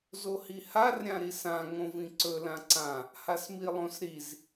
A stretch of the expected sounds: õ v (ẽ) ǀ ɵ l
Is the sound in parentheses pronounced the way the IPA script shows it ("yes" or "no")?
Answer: no